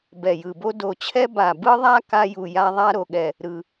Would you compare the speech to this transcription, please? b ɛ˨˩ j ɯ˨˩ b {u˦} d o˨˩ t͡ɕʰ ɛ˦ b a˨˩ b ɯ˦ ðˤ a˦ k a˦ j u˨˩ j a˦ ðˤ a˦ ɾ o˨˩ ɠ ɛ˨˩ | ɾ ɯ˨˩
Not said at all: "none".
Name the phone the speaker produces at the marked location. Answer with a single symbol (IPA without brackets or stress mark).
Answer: o˦